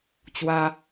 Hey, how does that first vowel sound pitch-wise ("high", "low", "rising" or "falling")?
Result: high